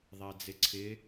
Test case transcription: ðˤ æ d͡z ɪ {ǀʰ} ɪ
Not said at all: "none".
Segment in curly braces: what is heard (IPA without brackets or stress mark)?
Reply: ǀʰ